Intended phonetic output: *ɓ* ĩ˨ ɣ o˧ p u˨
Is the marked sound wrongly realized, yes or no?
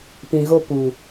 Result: yes